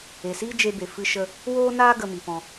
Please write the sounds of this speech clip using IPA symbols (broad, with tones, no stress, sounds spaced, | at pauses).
e˨ s iː˦ d͡ʒ e˧ b e˨ f ɨ˧ ʃ ə˧ | w oː˦ n aː˦ ɡ ə˧ m i˨ p ɔ̃˧